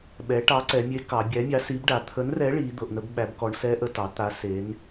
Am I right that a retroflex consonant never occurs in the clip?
no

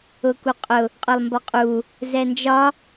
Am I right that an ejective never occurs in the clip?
no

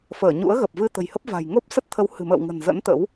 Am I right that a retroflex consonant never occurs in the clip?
yes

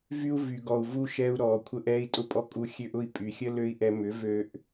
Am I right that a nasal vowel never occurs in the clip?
yes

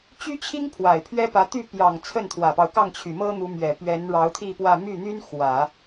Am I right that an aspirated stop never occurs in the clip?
no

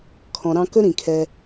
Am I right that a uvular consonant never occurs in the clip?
yes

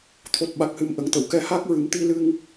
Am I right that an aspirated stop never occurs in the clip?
no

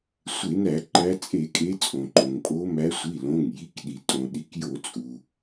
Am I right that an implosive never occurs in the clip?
no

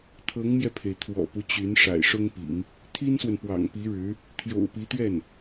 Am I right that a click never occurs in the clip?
yes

